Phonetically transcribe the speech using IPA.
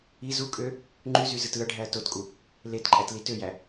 i z u kʼ ø | ŋ͡ǃ y z y z ɯ t ɯ ɐ̯ ɖʱ æ ɐ̯ t o t kʼ u | l e t ǃʼ æ t l i t ø j æ

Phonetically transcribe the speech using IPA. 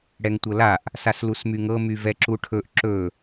ɽ ɛ ŋ tʷ ɤ l a ʔ | s a s l u s m y ŋ ɤ m y v ɛ ǁ u ʈʰ ɵ ʔ ǁ ɵ

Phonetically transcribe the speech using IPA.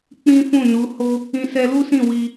k͡p ĩ˦ f ũ˦˨ n u˨˦ h o˦ | ĩ˧ s ɛ˧ l u˦ s ĩ˦˨ w i˧

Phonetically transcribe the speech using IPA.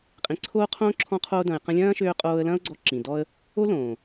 qʼ ĩ˨ ǀʰ oː˦ qʰ õː˦ ǁʰ ɔ̃˧ qʰ oː˧ d ɐ̃˨ ɪ̯ q ɐ̃˧ lʲ ɐ̃ː˦ ʃ øː˧ qʼ oː˧ ə̯ l ɐ̃˦ ʊ̯ ɡ͡ǀ ɔ˧ ǁ ĩ˨ d ɔ˦ ə̯ | o˦ l õː˨

